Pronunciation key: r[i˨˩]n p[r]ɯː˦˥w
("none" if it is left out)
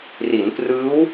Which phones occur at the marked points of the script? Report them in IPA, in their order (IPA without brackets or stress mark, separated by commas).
i˩˦, r